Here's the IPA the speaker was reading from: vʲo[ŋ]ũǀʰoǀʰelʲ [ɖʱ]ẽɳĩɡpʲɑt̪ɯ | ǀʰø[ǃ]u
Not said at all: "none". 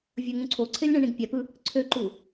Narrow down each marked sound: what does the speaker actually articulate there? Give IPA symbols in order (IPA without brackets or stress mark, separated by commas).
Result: ŋ, ɳ, ǃ